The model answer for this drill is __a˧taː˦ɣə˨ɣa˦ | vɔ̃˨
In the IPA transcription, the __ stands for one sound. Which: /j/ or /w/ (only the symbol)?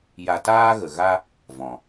j